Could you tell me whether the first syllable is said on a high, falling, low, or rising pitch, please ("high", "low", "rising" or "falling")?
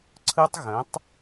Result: high